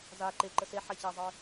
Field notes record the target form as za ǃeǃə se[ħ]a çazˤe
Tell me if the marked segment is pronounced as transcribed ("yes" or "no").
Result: yes